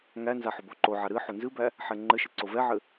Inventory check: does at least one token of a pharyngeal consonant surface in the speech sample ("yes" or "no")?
yes